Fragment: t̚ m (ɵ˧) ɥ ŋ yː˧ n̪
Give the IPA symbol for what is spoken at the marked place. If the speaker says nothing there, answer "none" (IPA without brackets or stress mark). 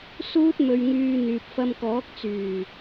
ɵ˧